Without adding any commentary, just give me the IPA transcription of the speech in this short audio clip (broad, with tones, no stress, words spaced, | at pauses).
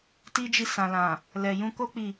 ti˦d͡ʒi˧ sã˨lã˨ | lɛ˨jũ˧ko˦ k͡pi˦˨